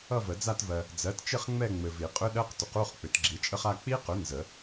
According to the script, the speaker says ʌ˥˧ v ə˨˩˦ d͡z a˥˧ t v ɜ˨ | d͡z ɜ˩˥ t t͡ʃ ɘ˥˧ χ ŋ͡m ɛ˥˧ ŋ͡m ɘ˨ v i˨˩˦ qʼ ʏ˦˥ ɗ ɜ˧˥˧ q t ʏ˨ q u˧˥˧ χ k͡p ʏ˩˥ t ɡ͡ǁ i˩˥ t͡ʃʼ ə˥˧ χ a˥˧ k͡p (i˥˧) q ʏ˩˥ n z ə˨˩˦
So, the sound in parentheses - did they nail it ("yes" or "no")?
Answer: no